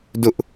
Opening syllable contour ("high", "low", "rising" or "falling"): high